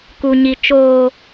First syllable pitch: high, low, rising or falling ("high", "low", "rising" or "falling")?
low